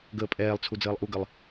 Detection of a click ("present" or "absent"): absent